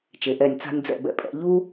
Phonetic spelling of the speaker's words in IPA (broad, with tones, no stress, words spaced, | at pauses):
t͡ʃe˩˧ʔɛ˧˩nʲ t͡sa̤˧nʲd͡zɛ̰˧˩ bɛ̰˧pʼɛ̰˥˧ ʎu˥